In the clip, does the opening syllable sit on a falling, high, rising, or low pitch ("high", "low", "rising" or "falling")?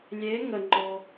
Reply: rising